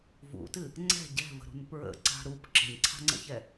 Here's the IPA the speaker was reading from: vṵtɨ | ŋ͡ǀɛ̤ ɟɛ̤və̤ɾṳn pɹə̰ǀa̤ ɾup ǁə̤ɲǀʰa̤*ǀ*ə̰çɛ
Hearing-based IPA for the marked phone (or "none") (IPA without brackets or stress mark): ŋ͡ǀ